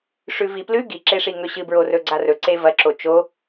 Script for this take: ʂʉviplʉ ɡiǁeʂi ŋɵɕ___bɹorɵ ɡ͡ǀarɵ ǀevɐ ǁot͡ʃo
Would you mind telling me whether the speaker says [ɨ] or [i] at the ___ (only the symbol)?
ɨ